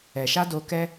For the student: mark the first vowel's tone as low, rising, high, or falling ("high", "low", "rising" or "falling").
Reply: low